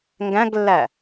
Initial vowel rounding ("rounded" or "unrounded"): unrounded